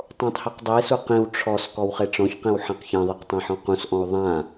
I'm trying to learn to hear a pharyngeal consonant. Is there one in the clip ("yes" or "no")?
yes